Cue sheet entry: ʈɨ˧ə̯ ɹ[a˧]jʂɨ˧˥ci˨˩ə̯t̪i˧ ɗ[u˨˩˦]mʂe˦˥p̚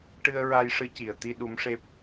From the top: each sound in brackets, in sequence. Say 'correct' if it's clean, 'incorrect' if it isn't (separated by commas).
correct, incorrect